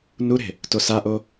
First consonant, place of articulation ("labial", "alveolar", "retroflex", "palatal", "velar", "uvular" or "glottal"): alveolar